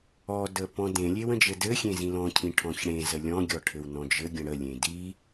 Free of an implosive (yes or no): yes